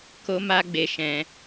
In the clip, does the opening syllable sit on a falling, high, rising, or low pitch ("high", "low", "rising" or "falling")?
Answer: high